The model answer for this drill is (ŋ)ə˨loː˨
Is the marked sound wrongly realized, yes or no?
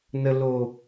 yes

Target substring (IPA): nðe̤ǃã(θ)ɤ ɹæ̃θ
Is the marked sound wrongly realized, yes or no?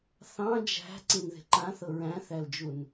no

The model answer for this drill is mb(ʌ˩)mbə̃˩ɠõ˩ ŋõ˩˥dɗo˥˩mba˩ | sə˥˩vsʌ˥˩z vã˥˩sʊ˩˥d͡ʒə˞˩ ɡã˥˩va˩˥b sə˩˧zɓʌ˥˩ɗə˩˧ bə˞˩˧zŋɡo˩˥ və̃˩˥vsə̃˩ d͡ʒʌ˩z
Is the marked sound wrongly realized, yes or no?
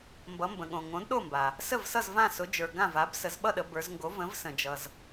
yes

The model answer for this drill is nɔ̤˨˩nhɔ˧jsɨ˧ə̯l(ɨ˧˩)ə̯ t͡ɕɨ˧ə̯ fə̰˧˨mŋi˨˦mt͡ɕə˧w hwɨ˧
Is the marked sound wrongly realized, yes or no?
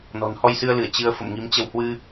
no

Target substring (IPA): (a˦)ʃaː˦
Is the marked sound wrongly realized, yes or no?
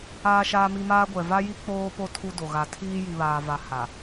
yes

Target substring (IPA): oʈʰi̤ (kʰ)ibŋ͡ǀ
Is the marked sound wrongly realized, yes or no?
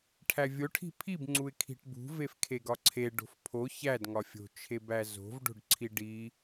yes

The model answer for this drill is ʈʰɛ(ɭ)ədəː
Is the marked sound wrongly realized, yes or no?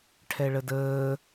no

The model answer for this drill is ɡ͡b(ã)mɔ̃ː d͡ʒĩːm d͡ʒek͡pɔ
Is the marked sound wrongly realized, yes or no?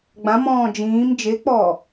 no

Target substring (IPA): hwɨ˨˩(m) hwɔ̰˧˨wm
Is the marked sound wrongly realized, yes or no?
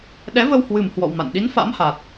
no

